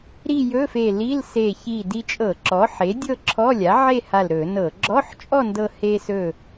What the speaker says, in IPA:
ɾ i˥˧ j ɵ˧˥˧ f e˧˩ l i˧˥˧ l s e˧˩ ç i˧˩ d i˧ t͡ʃʼ ɤ˧˩˧ ǁ ɔ˩˥ ħ e˩˥ dʲ ɤ˥˧ ǁʰ ɔ˧˥˧ lʲ a˩˥ ʕ e˥˧ h a˧˩ l ɾ ɵ˧˩˧ n ɤ˧˩˧ ɡ͡ǁ ɔ˧˥˧ ħ t͡ʃʼ ɔ˥˧ n d ɤ˧ h e˧ s ɵ˧˩

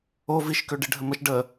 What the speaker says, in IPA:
o v i ʃ k ø ɖ i ɖʱ ə m ə ʃ ɖ ə

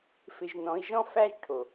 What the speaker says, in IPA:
f ɪ˧ ʒ n ɔ̃˨˦ i̯ ʒ ɔ̃˦ f æ˦ ʒ ʈʰ o˨

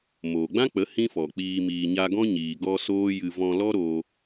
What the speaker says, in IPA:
m oː˨ ɡ͡b ã˦ k͡p ə˨˦ h ĩ˦ f ɔ˨ k͡p iː˧ m iː˨ ɲ a˧ ɡ ɔ̃˦ ɲ iː˨ ɡ ɔ˧ s oː˦ j ɨ˧ v ɔ̃˧ l ɔ˦ ɾ o˧

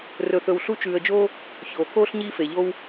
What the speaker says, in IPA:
r ɵ˨ θ ɵ˨ w ɬ u˦ t͡ʃ ʉː˨ ə̯ d͡ʒ oː˦ | ç oː˩ k oː˥ ɬ ɲ iː˦ f e˩ ʎ o˦ w

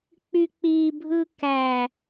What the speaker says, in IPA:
k͡p y k͡p i bʱ ɯ k æ

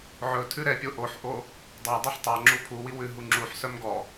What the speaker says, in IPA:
ʕ ɵ tʰ ʉ ɾ ɛ pʲ o ʔ o ħ ʔ o | dˤ ɑ dˤ œ ħ tˤ ɑ ŋ͡ǁ u pʰ u w i w ʉ ɦ u ŋ͡ǁ u ħ s œ m ɡ ɔ

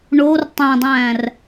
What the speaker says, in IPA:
ɳ o r tˤ æ̃ dˤ æ̃ː r

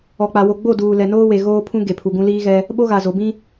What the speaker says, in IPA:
ɔ˨ k͡p a˨ w o˨ ɡ͡b o˦˨ d uː˨ l ɛ˨ n oː˦ w e˨ ɣ oː˦ pʰ ũ˦ ɡ e˨ pʰ u˨ ɡ ũ˦ l iː˦ ɣ ɛ˦ | ɓ o˦ ɣ a˨ z o˨ b ĩ˦

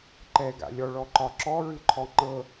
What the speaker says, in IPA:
ǃ ɛ ɡ a̰ lʲ ɔ ɭ ɔ ǃ ɒ ǁ ɔ ɹ ɨ ǃʰ ɔ ŋ͡ǃ ɤ

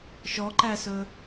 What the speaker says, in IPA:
ʃ ɔ ǃ æ s ɵ

